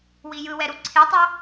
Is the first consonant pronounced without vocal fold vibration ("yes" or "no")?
no